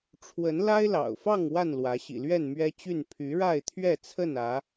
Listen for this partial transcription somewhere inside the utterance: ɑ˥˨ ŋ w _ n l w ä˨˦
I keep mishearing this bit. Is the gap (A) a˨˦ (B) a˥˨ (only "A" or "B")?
B